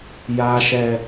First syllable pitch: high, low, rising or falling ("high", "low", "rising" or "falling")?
low